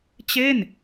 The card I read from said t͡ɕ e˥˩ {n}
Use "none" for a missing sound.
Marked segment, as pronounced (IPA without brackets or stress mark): n